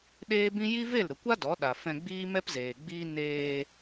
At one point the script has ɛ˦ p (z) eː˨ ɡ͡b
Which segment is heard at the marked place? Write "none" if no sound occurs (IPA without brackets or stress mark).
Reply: z